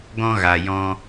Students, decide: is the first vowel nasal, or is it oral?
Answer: nasal